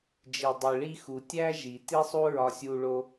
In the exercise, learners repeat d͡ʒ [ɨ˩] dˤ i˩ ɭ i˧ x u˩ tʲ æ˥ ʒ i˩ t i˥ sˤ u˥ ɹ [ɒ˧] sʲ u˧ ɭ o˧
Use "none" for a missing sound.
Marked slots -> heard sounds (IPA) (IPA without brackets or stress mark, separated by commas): i˩, ɒ˧